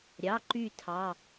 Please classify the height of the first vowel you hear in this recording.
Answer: low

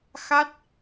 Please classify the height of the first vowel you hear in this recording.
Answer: low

